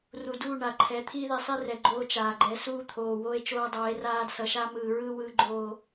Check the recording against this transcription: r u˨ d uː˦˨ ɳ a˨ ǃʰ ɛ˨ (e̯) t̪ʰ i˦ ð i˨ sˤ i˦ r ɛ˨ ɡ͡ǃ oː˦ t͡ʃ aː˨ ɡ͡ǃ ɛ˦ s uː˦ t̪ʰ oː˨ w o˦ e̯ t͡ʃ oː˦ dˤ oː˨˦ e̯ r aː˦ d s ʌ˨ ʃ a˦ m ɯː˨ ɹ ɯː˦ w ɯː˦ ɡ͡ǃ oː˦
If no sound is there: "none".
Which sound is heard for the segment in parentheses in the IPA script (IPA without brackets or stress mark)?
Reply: none